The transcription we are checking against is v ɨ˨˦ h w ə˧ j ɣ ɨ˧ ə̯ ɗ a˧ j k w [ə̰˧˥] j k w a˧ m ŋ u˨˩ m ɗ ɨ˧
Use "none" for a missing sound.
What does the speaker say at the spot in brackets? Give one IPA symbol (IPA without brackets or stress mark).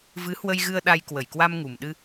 ə˧˩